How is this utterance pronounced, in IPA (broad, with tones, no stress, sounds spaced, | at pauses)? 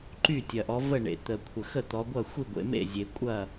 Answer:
ǃ y˥˩ tʲ ɐ˩ ʔ ɔ˩˧ v ə˥˩ ɳ ḛ˩ t̪ ə˩ kʷʰ ə˩ x ə˥˩ t̪ ɔ˩˧ ɡʷ ɐ˥˩ xʷ i˥˩ ɡʷ ḛ˩˧ m ḛ˥˩ zʲ e˩ kʷʼ ɐ˥˩